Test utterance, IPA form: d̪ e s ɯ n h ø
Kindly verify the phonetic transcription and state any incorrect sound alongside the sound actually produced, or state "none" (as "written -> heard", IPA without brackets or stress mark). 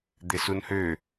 ɯ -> u